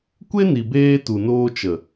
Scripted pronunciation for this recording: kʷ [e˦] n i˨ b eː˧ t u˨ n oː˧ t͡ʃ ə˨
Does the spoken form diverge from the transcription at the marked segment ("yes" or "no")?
no